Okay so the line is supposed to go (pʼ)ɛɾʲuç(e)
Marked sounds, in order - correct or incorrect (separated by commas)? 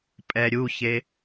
correct, correct